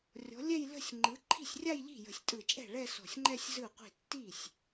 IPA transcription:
rʲɔ̤˨˥lʲɛ˥˧jlə̤˥˧sʲ ŋ͡ǃɯ˨˥ ǃʰi̤˥˩sʲrʲa˥˧jʎi̤˥˩ jə̤˧˩sʲtʼɯ˧˩t͡ʃʼɛ̤˥˩ ɭɛ˥˧sɔ̤˧˩sʲŋ͡ǃɛ˥˧sʲ zɯ˥˩qʷi̤˥˩ tːi˥˩sʲ

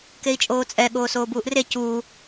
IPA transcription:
kei̯t͡ʃʼoːt͡sʼɛ ɠoːsoːbuːʔre cuː

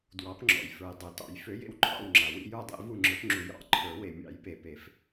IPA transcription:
dwɑ˨˥pŋ͡ǁɔ̰˩j fə˞˩j dˤø˩tɑ̰˨˩˦j fø˨˥jḛ˦˨wǃʰɑ̰˦˨wŋ͡ǁa˩ wḭ˦˨jə˞˦˨dˤḛ˨˩˦ vu˦˨ŋ͡ǁə˞˨˥pŋ͡ǁu˨˩˦jɑ̰˨˩˦ ǃʰə˞˨˩˦ we˩mʲɑ̰˨˩˦jpe˩ pe˨˩˦f

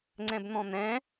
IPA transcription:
ŋ͡ǀɛ̃bn̪ɔ̃n̪ɛ̃

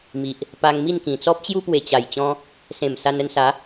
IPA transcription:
mi˨ʔ | pa˧ŋmi˥˧n kĩ˨˩t͡sɔ˦p̚t͡ɕju˦ pwe˨˩t͡ɕa˨˩jt͡ɕɔ̃˧ | sẽ˨˩m sa˧n ə˧nsa˨˦

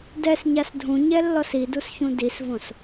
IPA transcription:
dɛsɲas dʱũɲɛlːɔs idusçũ disvõs

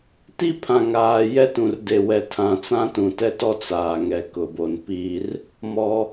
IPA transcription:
ti˦pʰã˨ŋaː˨ jɛ˦tũ˨rde˨ wɛ˨tʰã˨t͡sã˦ tũ˨tɛ˦tɔ˦ t͡saː˨ŋɛ˨ kʊ˨bo˨npi˦r | mɔ˦

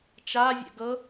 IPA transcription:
t͡ʃavʲɛ̰ ɡɤ

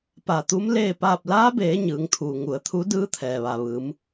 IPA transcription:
pa˧˩t̪u˧˥m leː˥˨paː˥˨p̚ laː˧˥beː˩˧ ɲɯː˩˧ŋt̪ʰuː˩ŋu˩ə̯t̪ʰu˧˥ dɯː˧˥t̪ʰɛː˩ʋa˩ ʋɯː˩˧m

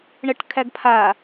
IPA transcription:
ɳəʈkʰæɡpʰa

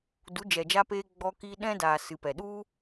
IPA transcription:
du˨˦d͡ʒɛ˨d͡ʒa˧peː˧ ɡ͡bɔ˧ kiː˧ɗɛ̃˦daː˨ sɨ˨pɛ˨ɗu˦

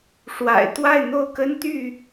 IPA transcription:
ʂwa̰˨˩ɪ̯ t̪wa˥˨ɪ̯n̪o˥˨ʊ̯kə˦nt̪y˥˨

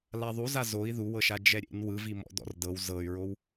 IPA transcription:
laðˤuza zoi̯ ðuwɤʃa d͡ʒɛɾʲḛn wɯvimɔ̰ dɔ̰rdɤw zɤy̯ɹow

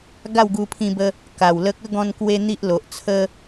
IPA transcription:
ɡa˥˧wɡu˧pʰĩ˧bə˧ | ka˨˩wlə˦k̚ ə˥˧ɡɔ̃˧n kwe˦n̪i˦ʔlo˨ʔt͡sʰə˦

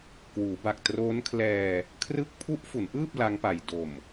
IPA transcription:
kwuː˩˦ba˨˩k̚ troː˦˥nkʰlɛː˧ | kʰrɯ˦˥k̚pʰu˦˥ʔ fu˩˦nʔɯː˥˩p̚ la˦˥ŋpa˨˩j do˨˩m

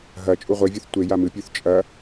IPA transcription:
ɦɐ t͡ʃʼuʁʷevʲuθ tʷe jamɨpʲʉθ t͡ʃʼɐ

